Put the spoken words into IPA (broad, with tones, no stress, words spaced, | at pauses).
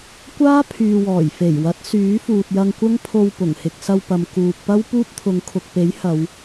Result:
kʷaː˥ pʰyː˨wɔː˨˩jfe˨˩jwɐ˨˥t̚ syː˨˥fuː˨t̚jɐ˧ŋkʷɐ˥ŋ pʰo˧w pʊ˨˩ŋhɪ˧k̚sɐ˧wpɐ˨m kuː˨k̚pɐ˥w puː˥p̚t̪ʰʊ˨˧ŋ kʰʊ˨k̚pe˨˥jhɐ˨˧w